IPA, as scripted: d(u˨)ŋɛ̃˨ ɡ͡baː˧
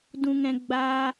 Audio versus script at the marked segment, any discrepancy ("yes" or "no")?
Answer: yes